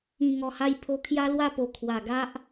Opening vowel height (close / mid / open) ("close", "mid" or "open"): close